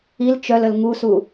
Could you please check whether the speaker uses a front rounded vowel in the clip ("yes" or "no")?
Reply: yes